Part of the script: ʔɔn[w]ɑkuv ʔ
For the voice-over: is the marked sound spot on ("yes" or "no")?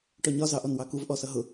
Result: yes